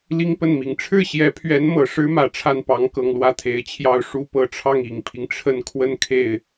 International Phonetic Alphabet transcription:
l i˥ ŋ p ə˥˩ n m i˨˩ ŋ ʈ͡ʂʰ ɻ̩˥˩ ɕ j ɛ˧˥ pʰ ɥ ɛ˧˥ n m ɤ˨˩ ʂ ɻ̩˥ m ä˨˩ ʈ͡ʂʰ a˥˩ n p ɑ˧˥ ŋ k ɤ˨˩ ŋ l w ä˥˩ t̪ʰ e˨˩ ɪ̯ t͡ɕʰ j ɑ˥˩ ʊ̯ ʂ u˥ p ɤ˧˥ ʈ͡ʂʰ ɑ˥˩ ŋ i˨˩ ŋ pʰ i˦ ŋ ʈ͡ʂʰ ə˥˧ n kʰ w ə˥˧ n kʰ e˥˩ ɪ̯

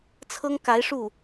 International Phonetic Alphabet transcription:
t͡sʰ ɤ˥ ŋ k a˧˥ ɪ̯ ʂ u˥˩

